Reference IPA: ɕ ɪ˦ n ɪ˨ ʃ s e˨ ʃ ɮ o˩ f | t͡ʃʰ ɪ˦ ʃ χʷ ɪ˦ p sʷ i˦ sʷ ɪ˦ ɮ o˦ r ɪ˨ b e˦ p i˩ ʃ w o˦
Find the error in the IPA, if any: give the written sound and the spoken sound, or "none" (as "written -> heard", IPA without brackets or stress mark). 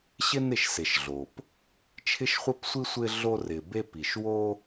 f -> p